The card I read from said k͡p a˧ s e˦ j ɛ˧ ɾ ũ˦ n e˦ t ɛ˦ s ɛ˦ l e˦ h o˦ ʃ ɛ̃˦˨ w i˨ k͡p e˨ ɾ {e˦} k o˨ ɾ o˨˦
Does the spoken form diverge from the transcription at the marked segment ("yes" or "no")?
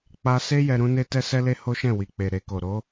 yes